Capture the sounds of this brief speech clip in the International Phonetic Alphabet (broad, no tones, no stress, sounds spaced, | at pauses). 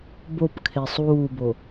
b o p kʰ e sˤ uː b o